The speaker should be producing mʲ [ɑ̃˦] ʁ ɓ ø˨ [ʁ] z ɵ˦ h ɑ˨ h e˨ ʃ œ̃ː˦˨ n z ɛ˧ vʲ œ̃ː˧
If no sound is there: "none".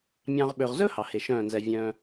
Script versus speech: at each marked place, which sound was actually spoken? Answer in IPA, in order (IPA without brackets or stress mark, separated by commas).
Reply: ɑ̃˧, ʁ